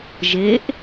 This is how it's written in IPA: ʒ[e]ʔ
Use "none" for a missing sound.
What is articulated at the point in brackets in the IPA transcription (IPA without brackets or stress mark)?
e